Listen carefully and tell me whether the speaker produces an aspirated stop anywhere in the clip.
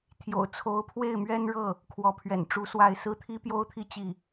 yes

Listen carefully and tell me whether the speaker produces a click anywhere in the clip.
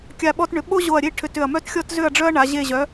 no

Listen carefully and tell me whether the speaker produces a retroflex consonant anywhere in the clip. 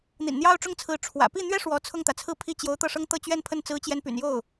yes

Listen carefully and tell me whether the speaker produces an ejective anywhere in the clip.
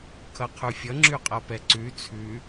yes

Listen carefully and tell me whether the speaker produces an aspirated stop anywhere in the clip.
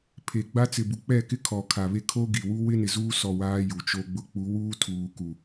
yes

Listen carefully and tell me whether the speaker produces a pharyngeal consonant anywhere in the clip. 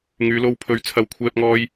no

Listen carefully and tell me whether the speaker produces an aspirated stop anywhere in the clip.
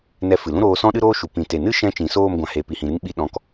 no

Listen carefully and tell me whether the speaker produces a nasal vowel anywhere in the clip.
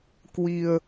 no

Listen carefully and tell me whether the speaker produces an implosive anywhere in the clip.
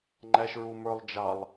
no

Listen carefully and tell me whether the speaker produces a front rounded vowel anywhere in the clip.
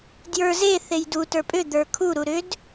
yes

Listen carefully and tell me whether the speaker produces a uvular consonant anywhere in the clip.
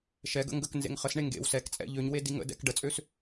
yes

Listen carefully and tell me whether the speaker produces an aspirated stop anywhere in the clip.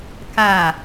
no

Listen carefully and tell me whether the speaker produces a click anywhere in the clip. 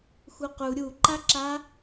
yes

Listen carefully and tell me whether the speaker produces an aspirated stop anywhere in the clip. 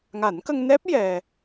no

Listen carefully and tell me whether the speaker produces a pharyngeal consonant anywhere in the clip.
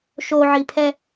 yes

